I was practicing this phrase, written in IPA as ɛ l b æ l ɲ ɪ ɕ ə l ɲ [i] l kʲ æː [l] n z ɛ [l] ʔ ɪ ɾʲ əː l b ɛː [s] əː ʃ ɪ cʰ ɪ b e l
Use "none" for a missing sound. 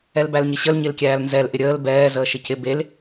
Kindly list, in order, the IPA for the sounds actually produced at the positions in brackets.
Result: ɪ, l, l, z

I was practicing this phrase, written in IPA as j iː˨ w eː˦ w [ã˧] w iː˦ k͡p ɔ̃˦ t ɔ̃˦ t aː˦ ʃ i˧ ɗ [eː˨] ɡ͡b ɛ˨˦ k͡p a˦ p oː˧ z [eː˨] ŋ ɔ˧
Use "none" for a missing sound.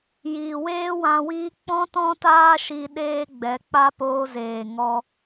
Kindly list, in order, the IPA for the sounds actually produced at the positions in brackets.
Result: ã˧, eː˦, eː˨

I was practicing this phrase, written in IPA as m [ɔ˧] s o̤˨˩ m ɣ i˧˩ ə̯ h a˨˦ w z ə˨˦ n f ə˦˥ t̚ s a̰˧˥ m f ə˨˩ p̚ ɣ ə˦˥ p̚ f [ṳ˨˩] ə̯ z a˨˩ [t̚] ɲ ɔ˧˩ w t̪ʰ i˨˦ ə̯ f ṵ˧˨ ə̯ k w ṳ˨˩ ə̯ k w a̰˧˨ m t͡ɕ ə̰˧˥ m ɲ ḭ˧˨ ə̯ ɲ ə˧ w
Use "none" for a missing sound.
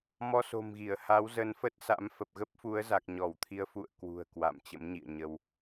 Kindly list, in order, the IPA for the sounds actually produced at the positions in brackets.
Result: ɔ˧, u˨˦, k̚

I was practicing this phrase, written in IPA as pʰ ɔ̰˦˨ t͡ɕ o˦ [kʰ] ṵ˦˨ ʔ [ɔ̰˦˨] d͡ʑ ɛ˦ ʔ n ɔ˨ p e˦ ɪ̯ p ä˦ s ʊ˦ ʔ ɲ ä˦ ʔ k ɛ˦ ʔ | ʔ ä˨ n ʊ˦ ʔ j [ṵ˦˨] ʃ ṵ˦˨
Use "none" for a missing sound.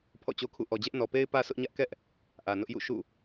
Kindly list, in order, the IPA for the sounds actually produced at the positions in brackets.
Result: kʰ, ɔ˨, ṵ˦˨

